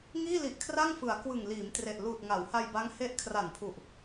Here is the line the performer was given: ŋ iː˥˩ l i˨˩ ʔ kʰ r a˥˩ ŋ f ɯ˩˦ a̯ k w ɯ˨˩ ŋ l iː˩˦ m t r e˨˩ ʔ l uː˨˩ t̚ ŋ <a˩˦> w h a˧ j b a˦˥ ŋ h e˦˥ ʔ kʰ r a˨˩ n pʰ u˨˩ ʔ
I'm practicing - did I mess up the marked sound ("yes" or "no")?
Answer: no